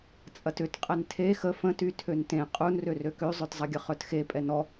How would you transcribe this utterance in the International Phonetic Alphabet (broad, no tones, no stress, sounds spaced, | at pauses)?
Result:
t͡sʼ ɐ t ʏ t qʼ ɛ n tʰ e x ə f ə̃ t y tʰ ø n t ẽ qʼ u n r ø r ø k ø zˤ œ t zˤ ɐ ɡʲ ə χ œ t x e pʼ ɛ n ɔ